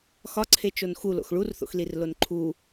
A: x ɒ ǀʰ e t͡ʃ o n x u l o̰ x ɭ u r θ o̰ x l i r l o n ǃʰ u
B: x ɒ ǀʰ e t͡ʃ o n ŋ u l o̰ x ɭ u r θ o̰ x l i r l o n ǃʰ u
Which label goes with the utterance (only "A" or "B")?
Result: A